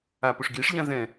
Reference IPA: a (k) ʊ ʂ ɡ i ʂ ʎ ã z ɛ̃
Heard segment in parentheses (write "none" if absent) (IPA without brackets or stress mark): p